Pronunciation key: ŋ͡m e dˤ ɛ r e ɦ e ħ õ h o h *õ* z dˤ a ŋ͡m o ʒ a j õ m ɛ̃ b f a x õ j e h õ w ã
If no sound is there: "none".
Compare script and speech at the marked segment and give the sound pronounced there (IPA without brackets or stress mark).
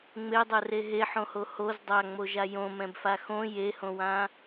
o